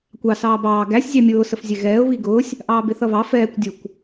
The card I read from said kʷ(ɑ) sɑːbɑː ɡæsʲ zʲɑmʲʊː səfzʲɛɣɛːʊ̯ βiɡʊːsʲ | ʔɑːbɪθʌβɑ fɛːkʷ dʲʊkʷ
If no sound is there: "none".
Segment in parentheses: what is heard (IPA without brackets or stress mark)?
ɑ